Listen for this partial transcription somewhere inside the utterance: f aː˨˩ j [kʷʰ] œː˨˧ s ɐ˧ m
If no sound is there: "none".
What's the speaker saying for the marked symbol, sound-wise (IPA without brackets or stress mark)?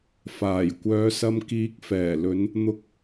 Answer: kʷ